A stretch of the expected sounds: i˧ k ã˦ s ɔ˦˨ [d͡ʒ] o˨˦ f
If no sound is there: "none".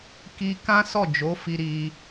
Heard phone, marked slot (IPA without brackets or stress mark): d͡ʒ